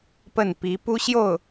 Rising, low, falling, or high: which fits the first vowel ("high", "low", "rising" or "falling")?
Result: falling